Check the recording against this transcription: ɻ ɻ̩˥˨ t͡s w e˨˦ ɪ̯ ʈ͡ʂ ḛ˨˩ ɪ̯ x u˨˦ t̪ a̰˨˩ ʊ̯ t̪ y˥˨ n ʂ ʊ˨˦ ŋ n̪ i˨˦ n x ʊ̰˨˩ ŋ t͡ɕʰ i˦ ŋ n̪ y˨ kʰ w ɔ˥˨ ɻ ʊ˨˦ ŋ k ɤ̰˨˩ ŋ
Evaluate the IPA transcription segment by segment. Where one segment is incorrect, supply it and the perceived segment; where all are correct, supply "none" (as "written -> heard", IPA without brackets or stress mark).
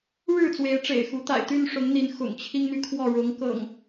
ʊ̯ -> ɪ̯